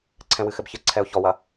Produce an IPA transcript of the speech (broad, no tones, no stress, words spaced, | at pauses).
ǀʰɛ̃wɨxɘbçɘ ǀʰɛʊ̯çɔwɐ